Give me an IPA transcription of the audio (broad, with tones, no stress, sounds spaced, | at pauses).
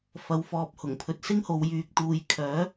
f ɐ˨ w f ɔː˧ p̚ h ʊ˨˩ ŋ pʰ ɵ˧ t̚ s ɪ˥ ŋ h o˨˧ w j yː˧ k̚ t̪ uː˧ j kʰ œː˨˥